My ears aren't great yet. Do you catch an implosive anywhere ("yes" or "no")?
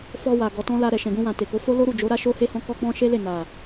no